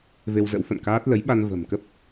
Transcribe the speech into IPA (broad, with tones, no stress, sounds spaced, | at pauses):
v e˧ w z ə̰˧˥ w f ə̰˧˨ n k aː˦˥ t̚ l ə˨˦ j ɓ a˧ n v ə̤˨˩ m k ə˦˥ p̚